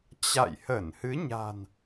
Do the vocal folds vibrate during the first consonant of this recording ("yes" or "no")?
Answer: no